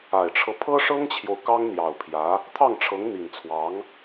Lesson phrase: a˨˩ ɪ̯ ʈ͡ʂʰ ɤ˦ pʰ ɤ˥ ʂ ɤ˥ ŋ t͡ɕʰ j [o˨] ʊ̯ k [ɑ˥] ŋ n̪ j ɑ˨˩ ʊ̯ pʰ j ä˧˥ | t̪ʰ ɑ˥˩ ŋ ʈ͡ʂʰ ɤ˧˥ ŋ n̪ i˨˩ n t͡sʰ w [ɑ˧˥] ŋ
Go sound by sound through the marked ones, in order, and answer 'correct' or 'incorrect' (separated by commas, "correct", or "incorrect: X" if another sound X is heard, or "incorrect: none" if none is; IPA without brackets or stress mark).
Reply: correct, correct, correct